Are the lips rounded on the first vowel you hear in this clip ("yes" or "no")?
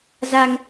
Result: no